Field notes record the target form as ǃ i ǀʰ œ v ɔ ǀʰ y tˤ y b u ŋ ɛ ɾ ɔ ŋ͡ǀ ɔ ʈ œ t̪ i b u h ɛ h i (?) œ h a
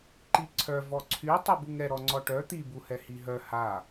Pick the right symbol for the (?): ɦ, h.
ɦ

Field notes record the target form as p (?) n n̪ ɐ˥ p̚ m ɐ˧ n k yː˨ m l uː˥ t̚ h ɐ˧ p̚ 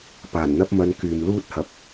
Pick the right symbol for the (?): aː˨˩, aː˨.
aː˨˩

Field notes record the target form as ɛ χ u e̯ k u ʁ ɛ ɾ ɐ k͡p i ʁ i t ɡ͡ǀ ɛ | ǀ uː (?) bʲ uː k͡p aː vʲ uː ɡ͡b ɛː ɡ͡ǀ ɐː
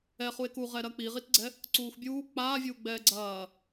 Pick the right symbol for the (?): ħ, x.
x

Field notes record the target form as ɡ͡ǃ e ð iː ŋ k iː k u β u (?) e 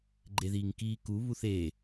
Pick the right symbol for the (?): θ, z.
θ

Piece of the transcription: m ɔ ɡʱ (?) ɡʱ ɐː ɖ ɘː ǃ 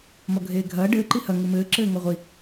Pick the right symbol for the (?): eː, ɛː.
eː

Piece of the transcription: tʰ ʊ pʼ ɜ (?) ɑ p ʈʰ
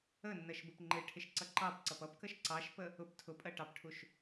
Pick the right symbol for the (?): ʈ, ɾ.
ʈ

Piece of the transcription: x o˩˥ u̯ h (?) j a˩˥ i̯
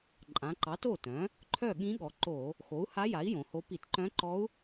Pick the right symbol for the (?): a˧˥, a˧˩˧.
a˧˥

